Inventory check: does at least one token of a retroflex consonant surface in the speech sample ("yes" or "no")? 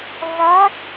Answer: no